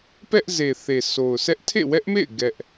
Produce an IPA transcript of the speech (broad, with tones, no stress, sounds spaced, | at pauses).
p ɛ˦ ʔ z e˨ θ e˨ sʰ o˨ ʊ̯ sʰ ɛ˦ ʔ tʰ ḛ˦˨ w ɛ˦ ʔ m ḛ˦˨ ɪ̯ ɡ ɛ˦ ʔ